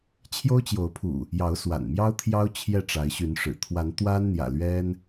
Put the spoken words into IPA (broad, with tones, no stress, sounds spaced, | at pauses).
t͡ɕʰ j o˦ ʊ̯ t͡ɕ j o˨˦ ʊ̯ pʰ ṵ˨˩ | j ɑ˨˦ ʊ̯ s w a̰˨˩ n m j ɑ˦ ʊ̯ t̪ʰ j ɑ˦ ʊ̯ t͡ɕʰ j ɛ˥˨ ʈ͡ʂ a˨˦ ɪ̯ ɕ y˨˦ n ʂ ɻ̩˨˩ t̪ʰ w a˨˦ n t̪ w a˦ n n̪ j ä̰˨˩ l ɥ ɛ˦ n